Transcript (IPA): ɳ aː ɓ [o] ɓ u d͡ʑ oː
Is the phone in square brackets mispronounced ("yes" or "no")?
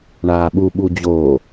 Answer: yes